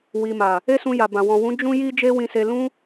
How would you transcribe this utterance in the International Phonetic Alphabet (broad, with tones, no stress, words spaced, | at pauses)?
wi˨ma˨ | e˦sũ˧ja˨bã˨ wɔ̃˨wũ˨˦ d͡ʒũ˦ji˦ d͡ʒe˦wĩ˧se˧ lũ˦